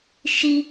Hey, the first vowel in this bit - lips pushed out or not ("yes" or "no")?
no